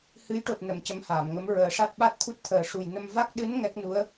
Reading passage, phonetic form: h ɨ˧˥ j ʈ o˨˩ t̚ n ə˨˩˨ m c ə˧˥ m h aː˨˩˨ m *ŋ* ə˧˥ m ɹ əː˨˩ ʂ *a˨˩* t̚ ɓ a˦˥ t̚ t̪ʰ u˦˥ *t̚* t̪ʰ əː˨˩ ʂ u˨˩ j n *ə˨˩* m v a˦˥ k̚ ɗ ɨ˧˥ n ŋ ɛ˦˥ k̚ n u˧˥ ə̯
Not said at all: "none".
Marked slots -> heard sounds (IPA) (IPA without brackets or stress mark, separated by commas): ŋ, a˦˥, t̚, ə˧